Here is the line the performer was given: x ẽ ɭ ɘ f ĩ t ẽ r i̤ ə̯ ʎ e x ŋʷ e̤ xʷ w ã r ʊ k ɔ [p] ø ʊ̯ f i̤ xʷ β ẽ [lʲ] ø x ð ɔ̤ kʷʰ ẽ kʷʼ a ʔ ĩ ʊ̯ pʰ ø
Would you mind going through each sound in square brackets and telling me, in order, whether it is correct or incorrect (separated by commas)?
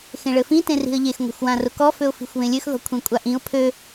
incorrect, correct